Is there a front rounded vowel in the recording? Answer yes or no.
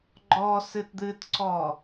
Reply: no